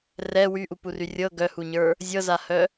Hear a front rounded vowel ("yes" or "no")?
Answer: yes